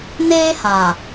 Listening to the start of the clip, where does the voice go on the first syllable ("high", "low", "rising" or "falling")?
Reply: high